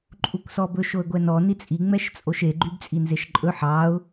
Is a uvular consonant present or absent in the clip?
absent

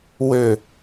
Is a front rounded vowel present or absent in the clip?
present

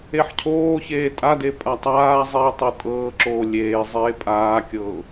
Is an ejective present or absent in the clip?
present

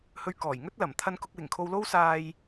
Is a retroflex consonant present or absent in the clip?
absent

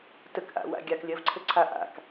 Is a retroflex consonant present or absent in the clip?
absent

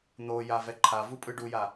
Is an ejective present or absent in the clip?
present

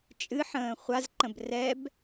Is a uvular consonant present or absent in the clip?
present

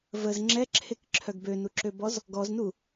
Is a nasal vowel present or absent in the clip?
absent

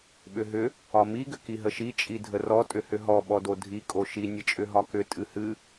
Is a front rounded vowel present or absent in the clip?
present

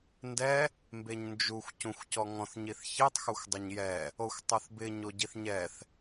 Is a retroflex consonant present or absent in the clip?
absent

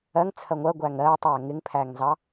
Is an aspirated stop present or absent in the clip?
present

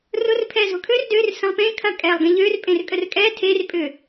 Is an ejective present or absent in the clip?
present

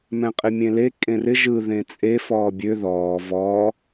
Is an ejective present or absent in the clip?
present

